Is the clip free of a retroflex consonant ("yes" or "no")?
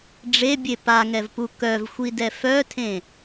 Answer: no